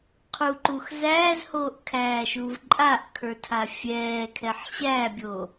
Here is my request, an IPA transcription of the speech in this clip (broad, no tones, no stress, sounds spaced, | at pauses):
qʰ u ǃ uː x z æː z h oː ʔ kʰ æː ʃ uː v ǃʼ a ʔ kʰ ə˞ tʰ a fʲ ɛː kʰ ɛ ħ ɕ æː bʲ oː